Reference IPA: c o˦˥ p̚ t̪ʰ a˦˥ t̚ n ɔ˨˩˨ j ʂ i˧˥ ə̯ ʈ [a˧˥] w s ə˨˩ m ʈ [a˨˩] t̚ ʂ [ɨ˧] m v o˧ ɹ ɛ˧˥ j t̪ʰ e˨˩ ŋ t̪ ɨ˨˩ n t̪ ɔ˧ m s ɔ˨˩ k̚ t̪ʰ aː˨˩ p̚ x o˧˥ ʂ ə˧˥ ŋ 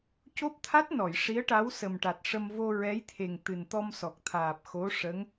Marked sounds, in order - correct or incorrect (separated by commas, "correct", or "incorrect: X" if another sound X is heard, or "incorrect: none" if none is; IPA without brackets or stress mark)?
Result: correct, correct, incorrect: ə˧